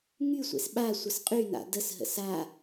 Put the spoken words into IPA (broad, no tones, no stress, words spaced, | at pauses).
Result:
ŋysʷḛs ɓa sʷəsqʼyna̰ dəsɦə̰s a